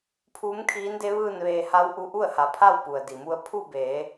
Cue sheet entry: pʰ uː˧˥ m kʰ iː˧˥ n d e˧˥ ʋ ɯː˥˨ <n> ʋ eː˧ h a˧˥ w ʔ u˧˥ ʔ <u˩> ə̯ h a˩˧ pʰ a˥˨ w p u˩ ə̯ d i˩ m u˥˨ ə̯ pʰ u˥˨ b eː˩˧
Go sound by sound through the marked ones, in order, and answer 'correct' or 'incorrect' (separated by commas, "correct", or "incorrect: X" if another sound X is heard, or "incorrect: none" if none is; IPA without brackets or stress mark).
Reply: correct, incorrect: u˥˨